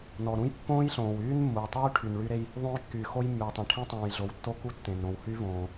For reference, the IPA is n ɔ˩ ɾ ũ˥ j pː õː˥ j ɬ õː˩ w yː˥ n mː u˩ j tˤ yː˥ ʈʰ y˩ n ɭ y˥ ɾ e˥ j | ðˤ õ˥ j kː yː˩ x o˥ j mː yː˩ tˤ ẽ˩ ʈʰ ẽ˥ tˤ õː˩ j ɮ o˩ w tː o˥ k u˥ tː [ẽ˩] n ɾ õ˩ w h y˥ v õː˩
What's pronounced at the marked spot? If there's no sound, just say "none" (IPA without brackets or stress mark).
ẽ˩